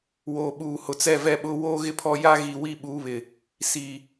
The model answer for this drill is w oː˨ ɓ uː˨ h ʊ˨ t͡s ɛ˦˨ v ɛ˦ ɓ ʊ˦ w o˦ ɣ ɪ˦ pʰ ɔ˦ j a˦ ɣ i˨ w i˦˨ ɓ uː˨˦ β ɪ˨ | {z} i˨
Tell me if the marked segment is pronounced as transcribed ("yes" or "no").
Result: no